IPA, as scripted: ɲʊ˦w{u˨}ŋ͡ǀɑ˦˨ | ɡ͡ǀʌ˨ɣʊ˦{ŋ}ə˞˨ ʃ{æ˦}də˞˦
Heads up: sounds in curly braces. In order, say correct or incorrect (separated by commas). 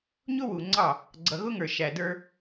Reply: correct, correct, incorrect